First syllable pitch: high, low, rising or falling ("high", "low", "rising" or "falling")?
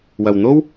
low